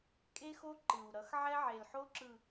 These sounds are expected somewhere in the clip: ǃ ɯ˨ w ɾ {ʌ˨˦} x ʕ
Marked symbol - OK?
yes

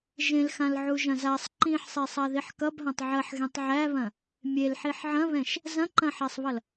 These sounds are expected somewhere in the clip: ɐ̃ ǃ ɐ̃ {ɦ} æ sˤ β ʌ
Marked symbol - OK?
no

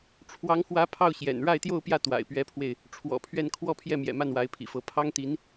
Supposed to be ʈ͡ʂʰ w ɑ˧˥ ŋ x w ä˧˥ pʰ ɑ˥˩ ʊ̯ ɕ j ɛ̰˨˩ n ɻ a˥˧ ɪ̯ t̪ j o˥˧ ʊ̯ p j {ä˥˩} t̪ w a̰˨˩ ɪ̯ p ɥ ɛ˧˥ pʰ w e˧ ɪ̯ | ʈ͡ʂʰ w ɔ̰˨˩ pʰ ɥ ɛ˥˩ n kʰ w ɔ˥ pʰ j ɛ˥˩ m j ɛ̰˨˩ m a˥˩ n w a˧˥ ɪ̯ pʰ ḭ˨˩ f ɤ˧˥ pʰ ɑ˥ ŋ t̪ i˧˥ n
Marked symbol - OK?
yes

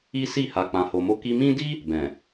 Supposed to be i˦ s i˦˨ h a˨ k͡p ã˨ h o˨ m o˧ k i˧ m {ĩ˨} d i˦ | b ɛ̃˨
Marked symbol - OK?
no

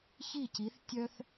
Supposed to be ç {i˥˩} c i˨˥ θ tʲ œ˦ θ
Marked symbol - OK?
yes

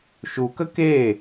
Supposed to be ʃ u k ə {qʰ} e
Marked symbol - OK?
no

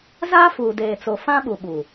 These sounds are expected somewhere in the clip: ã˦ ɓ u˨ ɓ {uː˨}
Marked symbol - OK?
yes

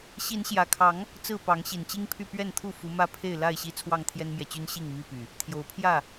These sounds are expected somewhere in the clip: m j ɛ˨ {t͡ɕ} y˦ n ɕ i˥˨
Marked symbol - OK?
yes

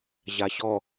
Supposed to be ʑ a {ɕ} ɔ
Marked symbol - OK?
yes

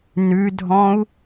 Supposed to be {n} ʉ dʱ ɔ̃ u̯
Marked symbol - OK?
yes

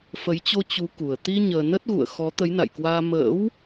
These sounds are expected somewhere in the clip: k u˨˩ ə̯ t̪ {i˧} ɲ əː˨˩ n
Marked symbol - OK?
yes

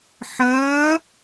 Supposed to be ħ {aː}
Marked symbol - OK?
no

